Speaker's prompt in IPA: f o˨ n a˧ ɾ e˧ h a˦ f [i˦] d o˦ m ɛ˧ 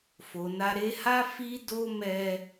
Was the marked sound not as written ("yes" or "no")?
no